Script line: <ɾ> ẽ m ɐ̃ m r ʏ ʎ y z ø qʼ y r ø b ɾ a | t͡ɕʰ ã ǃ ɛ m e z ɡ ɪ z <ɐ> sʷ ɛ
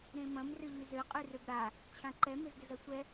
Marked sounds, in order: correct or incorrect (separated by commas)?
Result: correct, correct